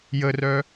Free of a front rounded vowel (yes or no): no